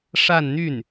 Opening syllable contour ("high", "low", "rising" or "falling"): falling